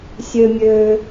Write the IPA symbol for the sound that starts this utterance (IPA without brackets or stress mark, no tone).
sʲ